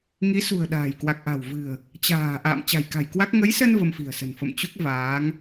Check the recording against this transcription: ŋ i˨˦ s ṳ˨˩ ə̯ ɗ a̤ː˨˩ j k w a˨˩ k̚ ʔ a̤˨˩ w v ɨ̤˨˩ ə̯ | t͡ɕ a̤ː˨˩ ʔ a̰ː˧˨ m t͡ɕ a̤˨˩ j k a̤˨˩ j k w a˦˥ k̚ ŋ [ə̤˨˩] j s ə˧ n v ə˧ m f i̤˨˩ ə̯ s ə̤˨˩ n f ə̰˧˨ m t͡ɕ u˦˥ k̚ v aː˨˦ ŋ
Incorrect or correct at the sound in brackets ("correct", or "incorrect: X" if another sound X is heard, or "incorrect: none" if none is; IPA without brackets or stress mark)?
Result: incorrect: ə˨˦